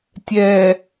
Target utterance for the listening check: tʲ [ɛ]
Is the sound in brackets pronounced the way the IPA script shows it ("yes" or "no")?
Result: yes